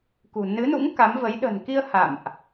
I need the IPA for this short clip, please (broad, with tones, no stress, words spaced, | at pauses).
kṳ˨˩ nɨ˨˦nṵ˧˥ŋ ka˨˦mvə˨˦j ɗə̤˨˩nki˧ə̯ ha̰˧˨mʔ